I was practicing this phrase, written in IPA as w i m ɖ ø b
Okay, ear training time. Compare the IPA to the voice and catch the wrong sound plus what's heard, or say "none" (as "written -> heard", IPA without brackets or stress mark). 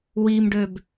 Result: none